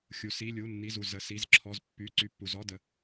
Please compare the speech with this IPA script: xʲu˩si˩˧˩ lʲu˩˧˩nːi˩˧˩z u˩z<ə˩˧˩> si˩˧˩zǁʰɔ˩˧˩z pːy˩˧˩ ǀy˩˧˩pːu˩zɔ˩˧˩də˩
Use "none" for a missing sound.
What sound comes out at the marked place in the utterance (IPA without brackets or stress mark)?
ə˩˧˩